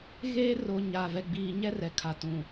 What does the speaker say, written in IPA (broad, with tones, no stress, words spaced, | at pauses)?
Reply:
ɣeː˦ ro˨ ɲaː˨ vɛ˨ɡ͡biː˨ ɲɛ˦rɛ˨ kʰa˨tũ˨